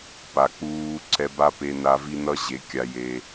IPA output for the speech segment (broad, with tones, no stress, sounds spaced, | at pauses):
p a˨ k͡p uː˧ ǀʰ ɛ˧ b a˦ p e˧ n a˧ v i˦ n ʌ˦ ʑ e˨˦ kʲ a˧ j e˧